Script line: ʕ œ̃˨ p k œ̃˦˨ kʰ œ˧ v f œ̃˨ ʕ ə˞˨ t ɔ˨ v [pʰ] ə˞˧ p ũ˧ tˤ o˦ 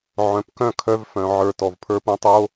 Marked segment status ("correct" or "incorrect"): correct